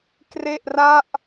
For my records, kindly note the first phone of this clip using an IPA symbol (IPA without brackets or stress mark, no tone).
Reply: k